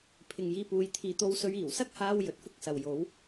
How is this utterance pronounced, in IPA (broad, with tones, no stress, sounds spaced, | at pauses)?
pʰ ɪ˨ ŋ j iː˧ p uː˨˧ j t̪ʰ iː˨ t̪ o˧ w s ɵ˧ ɥ iː˨˩ w s ɐ˥ k̚ h aː˧ w j ɵ˨˥ t̚ f ʊ˥ k̚ s ɐ˨ w j o˨˥ w